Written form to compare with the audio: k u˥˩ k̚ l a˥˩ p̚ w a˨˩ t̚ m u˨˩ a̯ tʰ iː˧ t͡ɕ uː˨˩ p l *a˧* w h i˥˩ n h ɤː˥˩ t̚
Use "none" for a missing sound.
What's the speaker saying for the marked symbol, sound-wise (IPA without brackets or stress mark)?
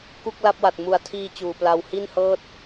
a˧